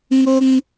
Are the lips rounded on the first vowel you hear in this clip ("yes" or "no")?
yes